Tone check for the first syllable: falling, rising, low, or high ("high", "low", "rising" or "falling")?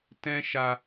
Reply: high